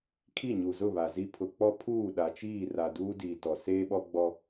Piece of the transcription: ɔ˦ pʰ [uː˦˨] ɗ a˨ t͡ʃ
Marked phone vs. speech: correct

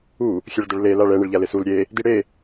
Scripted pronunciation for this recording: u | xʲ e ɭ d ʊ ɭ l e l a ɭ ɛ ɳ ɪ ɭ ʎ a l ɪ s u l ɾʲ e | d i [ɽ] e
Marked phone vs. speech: correct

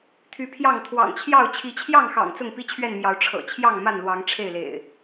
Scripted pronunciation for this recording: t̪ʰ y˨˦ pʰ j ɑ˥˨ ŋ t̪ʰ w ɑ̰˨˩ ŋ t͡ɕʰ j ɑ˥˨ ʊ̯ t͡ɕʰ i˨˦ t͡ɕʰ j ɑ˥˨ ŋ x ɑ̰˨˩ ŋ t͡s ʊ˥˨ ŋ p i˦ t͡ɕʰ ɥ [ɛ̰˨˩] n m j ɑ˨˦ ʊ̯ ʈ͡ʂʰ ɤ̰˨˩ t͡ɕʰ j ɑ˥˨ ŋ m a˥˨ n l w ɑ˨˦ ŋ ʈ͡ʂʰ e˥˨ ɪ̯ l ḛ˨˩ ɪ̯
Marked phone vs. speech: incorrect: ɛ˥˨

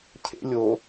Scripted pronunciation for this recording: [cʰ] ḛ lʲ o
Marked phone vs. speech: correct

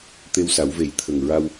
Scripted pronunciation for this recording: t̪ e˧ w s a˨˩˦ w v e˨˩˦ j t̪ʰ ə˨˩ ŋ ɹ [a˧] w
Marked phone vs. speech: correct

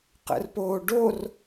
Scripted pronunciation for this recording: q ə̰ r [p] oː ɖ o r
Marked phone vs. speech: correct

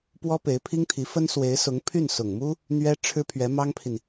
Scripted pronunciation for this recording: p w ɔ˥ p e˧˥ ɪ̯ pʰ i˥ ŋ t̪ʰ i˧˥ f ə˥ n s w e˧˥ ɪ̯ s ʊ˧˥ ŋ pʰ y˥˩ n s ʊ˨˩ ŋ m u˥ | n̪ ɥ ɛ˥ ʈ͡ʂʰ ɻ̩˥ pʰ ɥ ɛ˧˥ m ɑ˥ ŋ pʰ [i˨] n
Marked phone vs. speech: correct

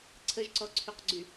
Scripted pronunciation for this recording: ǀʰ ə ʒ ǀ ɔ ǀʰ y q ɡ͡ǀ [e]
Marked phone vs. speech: incorrect: y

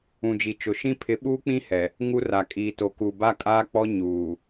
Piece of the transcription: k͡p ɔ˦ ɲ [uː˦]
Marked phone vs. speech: incorrect: uː˨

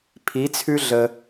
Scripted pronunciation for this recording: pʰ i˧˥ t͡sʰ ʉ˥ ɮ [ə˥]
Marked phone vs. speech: correct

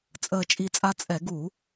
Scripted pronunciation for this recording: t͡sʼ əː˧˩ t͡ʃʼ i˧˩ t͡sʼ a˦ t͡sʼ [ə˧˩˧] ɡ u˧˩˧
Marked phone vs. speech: incorrect: ɛ˧˩˧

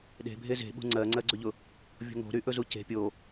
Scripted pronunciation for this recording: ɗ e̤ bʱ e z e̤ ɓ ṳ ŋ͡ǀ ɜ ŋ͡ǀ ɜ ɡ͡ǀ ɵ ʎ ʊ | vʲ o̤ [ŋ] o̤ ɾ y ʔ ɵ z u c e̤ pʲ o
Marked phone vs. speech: correct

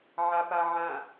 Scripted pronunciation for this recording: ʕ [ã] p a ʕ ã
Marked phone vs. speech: incorrect: a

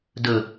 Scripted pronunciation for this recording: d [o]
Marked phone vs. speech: incorrect: ɵ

